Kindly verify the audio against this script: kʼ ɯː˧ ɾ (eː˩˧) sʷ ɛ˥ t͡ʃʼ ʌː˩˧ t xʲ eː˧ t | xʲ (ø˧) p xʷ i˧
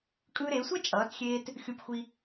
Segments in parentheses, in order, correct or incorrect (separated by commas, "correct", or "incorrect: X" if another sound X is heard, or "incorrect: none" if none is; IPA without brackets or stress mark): correct, incorrect: u˧